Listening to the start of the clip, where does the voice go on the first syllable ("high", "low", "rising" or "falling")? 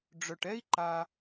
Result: low